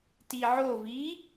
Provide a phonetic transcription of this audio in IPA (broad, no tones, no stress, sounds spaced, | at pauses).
t i ʕ o v i